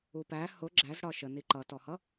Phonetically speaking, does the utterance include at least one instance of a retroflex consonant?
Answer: yes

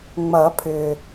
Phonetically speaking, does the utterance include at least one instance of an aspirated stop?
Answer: yes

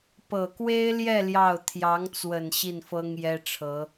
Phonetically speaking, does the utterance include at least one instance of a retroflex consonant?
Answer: yes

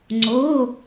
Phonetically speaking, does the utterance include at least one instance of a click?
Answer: yes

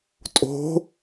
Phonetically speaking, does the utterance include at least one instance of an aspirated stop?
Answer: no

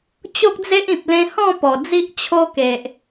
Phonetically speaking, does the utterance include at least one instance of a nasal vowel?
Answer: yes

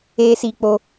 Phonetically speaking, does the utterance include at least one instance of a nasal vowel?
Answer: no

